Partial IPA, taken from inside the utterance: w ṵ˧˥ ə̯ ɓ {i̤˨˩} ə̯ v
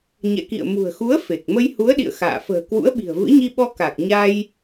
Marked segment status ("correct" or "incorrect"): correct